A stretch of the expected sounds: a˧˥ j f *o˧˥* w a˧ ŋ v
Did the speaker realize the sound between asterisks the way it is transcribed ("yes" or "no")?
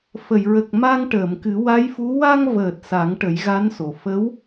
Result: no